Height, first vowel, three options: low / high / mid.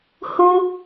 high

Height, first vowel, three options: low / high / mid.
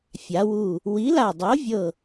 low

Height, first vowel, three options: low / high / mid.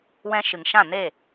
mid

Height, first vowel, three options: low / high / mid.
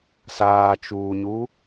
low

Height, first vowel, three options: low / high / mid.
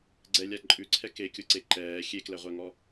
mid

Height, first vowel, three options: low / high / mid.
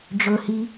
mid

